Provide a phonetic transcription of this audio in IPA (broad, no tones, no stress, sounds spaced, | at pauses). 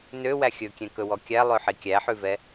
n ø w æ xʲ ɵ kʲ ɛ̃ k ɵ w ɔ kʲ æ lˠ ø ħ i kʲ æ ħ ʉ v ɛ